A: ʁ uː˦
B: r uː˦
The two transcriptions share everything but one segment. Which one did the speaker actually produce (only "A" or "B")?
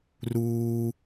B